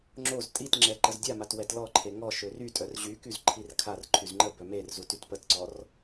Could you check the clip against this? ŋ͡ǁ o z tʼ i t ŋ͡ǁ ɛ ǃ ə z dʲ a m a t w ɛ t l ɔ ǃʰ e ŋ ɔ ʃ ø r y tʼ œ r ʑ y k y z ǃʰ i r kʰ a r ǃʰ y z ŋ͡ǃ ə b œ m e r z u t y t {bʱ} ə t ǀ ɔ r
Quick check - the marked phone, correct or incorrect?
incorrect